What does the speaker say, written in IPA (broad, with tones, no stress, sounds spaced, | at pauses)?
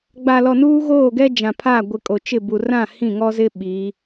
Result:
ɡ͡b a˨ l ɔ˨ n uː˦ ɣ oː˦˨ ɡ ɛ˦ d͡ʒ ã˨ pʰ aː˦˨ ɡʷ ɪ˨ kʼ o˨ t͡ʃ ɪ˦˨ b u˨ r ã˦˨ h ĩ˦˨ ŋ ɔ˦ z ɪ˦ ɓ i˨˦